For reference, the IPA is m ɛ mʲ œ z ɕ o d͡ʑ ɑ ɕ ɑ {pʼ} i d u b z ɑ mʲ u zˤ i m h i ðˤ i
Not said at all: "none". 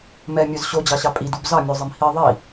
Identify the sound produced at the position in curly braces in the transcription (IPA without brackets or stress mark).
pʼ